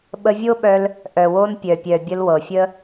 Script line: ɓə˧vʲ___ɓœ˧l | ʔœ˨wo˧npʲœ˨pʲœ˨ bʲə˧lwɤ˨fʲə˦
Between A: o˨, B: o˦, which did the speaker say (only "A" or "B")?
B